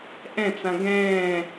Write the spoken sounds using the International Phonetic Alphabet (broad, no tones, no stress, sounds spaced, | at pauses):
ʔ ɛ̃ t͡s ã ɡ ɛ̃ː